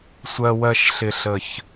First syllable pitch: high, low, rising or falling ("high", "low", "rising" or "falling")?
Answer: low